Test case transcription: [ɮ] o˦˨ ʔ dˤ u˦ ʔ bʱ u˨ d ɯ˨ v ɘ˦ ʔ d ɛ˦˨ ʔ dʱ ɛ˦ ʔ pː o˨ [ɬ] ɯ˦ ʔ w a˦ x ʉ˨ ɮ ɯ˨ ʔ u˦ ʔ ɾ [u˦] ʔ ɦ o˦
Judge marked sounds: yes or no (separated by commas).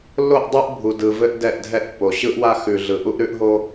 no, no, no